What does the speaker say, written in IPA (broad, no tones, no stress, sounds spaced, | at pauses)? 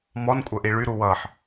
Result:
m ɔ n kʷʼ ə ʔ i ɭ y ɾ u w ʌ ħ